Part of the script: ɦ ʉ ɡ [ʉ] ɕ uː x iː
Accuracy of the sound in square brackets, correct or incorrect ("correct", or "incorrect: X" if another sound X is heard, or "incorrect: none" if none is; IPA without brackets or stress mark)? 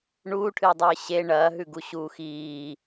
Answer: incorrect: u